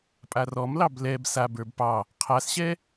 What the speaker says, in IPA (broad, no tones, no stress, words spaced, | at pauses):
pʼarɔmlɑb lɛb sabə˞b pɑ | qʰasɕɛ